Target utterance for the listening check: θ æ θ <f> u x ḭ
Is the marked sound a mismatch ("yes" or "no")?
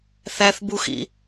yes